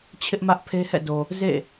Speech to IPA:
t͡ɕʰ ɪ˦ ʔ m ä˦ ʔ pʰ e˦ h ɛ̰˦˨ d o˨ | z ḛ˦˨

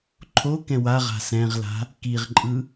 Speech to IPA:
ǃʰ o k ɛ̃ w a ʁ a̤ s ɛ̃ ʁ l a̤ | k i ʁ ǃʼ ɯ

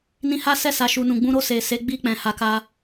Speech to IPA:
n ĩ˧ h a˦ s ɛ˦˨ s a˨ ʃ u˨ n ũ˨ ɡ͡b ũ˧ ɾ o˧ s e˨ s e˨˦ ɡ͡b i˦˨ k͡p ɛ̃˨ h a˨˦ k a˧

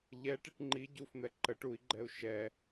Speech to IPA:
ʎ ɛ ʈ i ʈ ŋ͡ǃ i ɟ u f n̪ ɛ ǃ ə ʈ u i̯ ɡ͡ǃ ɛ u̯ ʃ ɛ

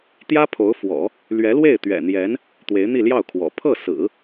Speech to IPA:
t̪ j ä˥ pʰ o˧˥ ʊ̯ f w ɔ̰˨˩˦ | l ɥ ɛ˧˥ l w e˥˩ ɪ̯ t̪ ɥ ɛ̰˨˩ n̪ j ɛ˧˥ n | t̪ w e˧˥ ɪ̯ n̪ i˥˧ l j ɑ˥˩ ʊ̯ kʰ w ɔ̰˨˩ pʰ ɤ˥˩ s ɹ̩˨˩˦

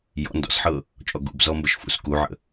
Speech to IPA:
j ɔ̰ n d ɔ̰ s ħ ɤ | t͡ʃʼ ɔ ɡ ṵ b z ɔ m b ə ʃ f ṵ s k u ʕ ə̰

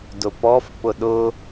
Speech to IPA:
d ʊ p ɔ f p ʊ ɗ ʊ

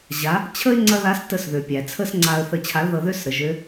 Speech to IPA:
ʑ a˩˧ | t͡ɕʰ ə˥ ɪ̯ ŋ͡ǀ ɐ˥ ð a˧˥ s t ə˧ s ð ø˩ pʲ æ˩ t͡sʰ ə˥ s ŋ͡ǀ a˧ ə̯ θ ə˧ t͡ɕʰ a˧˥ l ð ɤ˧ ð ø˥ s ɾ ə˩˧ ʒ ø˧˥

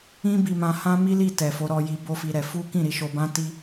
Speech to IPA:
ĩ˦ b i˧ m ã˧ h ã˦ m i˦ l i˦˨ t ɛ˨ f o˨˦ ɾ ɔ˧ j i˧ b o˦ f i˧ ɾ ɛ˧ f u˦ k ĩ˦˨ ɾ i˧ ʃ o˧ b ã˦ t i˦

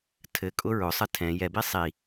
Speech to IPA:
tʰ ɘ kʼ ʊ ɹ ʊ sˤ ɘ tʰ ɛ̃ j ɛ b i sˤ i

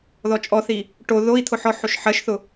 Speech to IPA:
ð ɔ t͡ʃʼ ɔ θ i | ʈ o ð o i̯ t̪ʰ ʊ ħ ɔ ħ o ʃ ħ ɜ ʃ θ ʊ

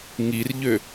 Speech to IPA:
ŋ i r ʎ ø

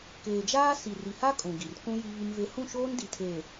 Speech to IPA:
k eː˨ d͡ʒ aː˦ s i˨ r i˨ h a˦ kʼ ũ˨ ɡ i˨ r k ũ˦ j i˦ β i˦ m v e˦ h ũ˦˨ ʃ oː˦ n d i˨ tʰ eː˨

